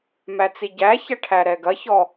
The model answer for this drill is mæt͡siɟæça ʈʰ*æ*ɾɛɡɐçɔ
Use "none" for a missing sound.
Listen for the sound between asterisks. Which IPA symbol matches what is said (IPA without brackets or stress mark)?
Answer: æ